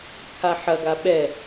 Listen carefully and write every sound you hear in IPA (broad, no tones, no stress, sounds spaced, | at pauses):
kʰ a ħ ɐ ɡ a ɓ ɛ